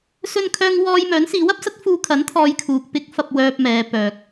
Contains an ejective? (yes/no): no